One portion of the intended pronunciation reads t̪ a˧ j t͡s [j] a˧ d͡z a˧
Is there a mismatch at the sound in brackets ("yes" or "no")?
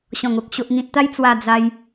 yes